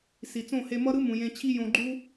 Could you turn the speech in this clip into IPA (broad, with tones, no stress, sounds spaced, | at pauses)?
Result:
s i˨ t͡s õ˦˨ h e˧ m ʌ˦ ɾ ɯ˦ m ũ˨ j ẽ˧ t͡ɕʰ i˦ j õ˧ ɡ͡ǃ u˦